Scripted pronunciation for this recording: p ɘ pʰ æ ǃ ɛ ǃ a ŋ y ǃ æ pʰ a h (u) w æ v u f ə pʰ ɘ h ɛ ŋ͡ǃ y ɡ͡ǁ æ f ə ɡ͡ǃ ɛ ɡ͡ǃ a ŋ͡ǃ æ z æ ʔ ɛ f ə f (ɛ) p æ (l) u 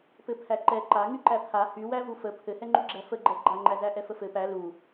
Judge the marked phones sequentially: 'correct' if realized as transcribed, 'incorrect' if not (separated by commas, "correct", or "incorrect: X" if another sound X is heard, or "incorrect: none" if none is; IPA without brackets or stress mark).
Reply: incorrect: y, incorrect: ɘ, correct